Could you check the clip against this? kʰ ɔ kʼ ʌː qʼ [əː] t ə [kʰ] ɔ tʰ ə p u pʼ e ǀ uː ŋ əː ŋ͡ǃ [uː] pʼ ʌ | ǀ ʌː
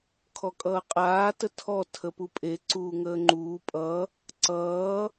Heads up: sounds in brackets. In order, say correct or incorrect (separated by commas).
incorrect, incorrect, correct